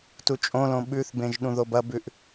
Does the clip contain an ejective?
yes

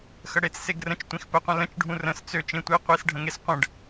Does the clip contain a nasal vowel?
yes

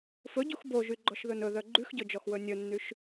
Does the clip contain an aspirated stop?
no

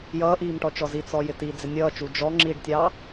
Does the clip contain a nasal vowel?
no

